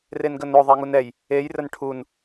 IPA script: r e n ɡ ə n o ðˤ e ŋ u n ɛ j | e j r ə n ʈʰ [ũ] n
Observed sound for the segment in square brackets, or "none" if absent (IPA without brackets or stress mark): u